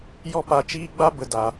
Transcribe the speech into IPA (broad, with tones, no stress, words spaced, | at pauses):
jɔ˦pa˧t͡ʃiː˦ɡ͡ba˦ bə˨ da˨